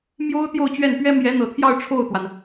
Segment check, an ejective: absent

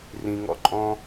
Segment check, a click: present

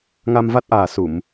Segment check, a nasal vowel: absent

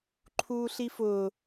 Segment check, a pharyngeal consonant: absent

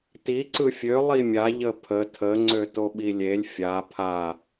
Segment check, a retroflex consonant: absent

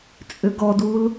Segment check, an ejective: present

